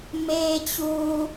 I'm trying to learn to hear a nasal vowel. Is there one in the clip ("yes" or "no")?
no